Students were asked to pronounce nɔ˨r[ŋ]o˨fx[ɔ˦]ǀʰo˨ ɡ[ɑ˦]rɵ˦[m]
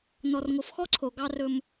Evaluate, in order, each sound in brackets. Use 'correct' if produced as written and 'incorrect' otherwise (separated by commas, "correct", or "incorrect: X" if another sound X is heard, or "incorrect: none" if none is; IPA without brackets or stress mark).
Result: correct, correct, correct, correct